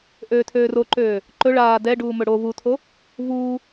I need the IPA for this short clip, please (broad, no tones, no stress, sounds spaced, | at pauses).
ʔ øː tʰ øː r o ǃ øː | ǃ ɵ ɭ aː d ɛ ɖ uː m ɵ ɽ o v u tʰ o | v uː